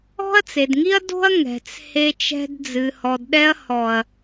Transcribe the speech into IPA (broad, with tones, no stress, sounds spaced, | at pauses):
ɔ̤˦ ɐ̯ t͡s e˨ d ŋ i˦ ɐ̯ d o̤˦ ɐ̯ ŋ ɛ̤˨ t͡s h e˧ t͡ʃ ɛ̤˧ d d͡z ɨ˨ h ɔ˨ d ɗ ɛ˧ ɐ̯ h ɔ˨ ɐ̯